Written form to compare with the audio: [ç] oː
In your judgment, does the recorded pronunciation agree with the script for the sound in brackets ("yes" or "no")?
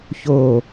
yes